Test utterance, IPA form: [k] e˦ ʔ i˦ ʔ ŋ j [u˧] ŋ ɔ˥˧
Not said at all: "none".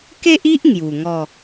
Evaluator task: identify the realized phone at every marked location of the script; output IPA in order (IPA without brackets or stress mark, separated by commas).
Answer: k, u˨˩